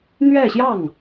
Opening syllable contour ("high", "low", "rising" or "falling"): falling